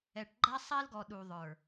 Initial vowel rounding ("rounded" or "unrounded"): unrounded